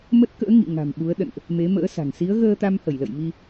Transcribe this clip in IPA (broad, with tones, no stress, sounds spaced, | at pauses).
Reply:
m ə˦˥ t̚ k ə̰ː˧˥ ŋ ḭ˧˨ ŋ a̤˨˩ m ɓ u˨˦ ə̯ ɗ ə̰˧˨ n ʔ | m e˨˦ m ə̰ː˧˥ s a̤˨˩ ŋ s i˨˦ ə̯ ɣ əː˧ t̪ a˧ m h ə˧˩ j l ə̰˧˨ j m i˧